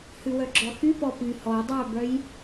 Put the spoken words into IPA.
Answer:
h ʉ w œ ɡ͡ǁ ɔ x y p ɔ p y h ɔ dˤ œ b œ j

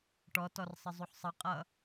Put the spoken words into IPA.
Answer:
ʈ ɔ t ɔ r sˤ ə zˤ u ħ sˤ ʌ qʼ ʌ

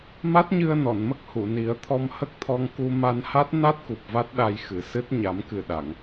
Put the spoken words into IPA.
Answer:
m a˦˥ t̚ ɲ ɨ˧ ə̯ n ɔ˨˩˨ n m ə˦˥ k̚ h u˨˩˨ n i˨˩˦ ə̯ t̪ʰ ɔ˧ m h ə˦˥ k̚ t̪ʰ ɔ˧ ŋ k u˧ m a˧ n h a˦˥ t̚ n a˦˥ t̚ k u˨˩ p̚ v a˦˥ t̚ ɗ a˧ j x ɨ˨˩ s ɨ˦˥ t̚ ɲ a˨˩˦ m k ɨ˨˩ ɗ a˨˩˨ ŋ

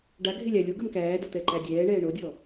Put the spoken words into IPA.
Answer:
ɖ a ɡʱ e lʲ a lʲ o ɡ ə m k æː d o t̪ ɛ ǃ æ dʲ ɛː ɳ ɛː ɳ o dʲ ɔ

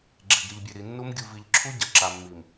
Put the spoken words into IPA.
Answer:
ɡ͡ǁ e˨ ɡ ɾ i˨ ʎ bʲ e˨ ɾ i˨ nː u˦ m ɡʲ u˨ v i˨ ʎ ǁʰ u˦ ɟ ɐ˨ ǁ a˨ mː i˨ m

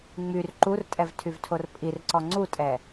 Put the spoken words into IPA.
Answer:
ŋ͡m y r ǃ u r tʼ ɛ v tʰ y v tʰ o r pʼ i r ǀ ɔ ŋ͡ǀ u tʼ ɛ

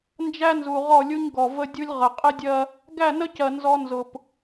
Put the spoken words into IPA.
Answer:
n d͡ʒ æ˦ n z u˨ ʁ ɔ˦˨ lʲ u˦ ɲ ɡ ɔ˨ v ə˦ dʲ u˦ lʲ ʁ ə˨ qʼ ɪ˦ dʲ ɜ˦ | ɡ æ˦˨ n ə˦ c ɜ˨ n z ɔ˦ n z ʊ˨ p

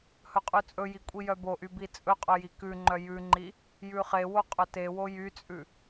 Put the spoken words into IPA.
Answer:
h ɵ qʼ ʉ t͡sʼ ɵ j i kʷʼ i j œ b o ʔ y b i t͡sʼ ɵ qʼ ɵ j i k ʉ ŋ͡ǃ œ j ʉ ŋ͡ǃ i | j ʉ χ e w o qʼ ɵ t e w o j y t͡sʼ ʉ

